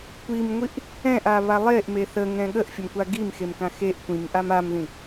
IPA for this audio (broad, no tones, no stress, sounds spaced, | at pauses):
kʷ i m ŋʷ i ʔ | ɛ̃ ʔ a β a lˠ e ʔ m e θ ə ŋ ɛ̃ ɠ ə ʔ fʲ ə m kʷ a ɡ i m x e m k ã x e ʔ kʷ ĩ m ʔ a m a m ð ĩ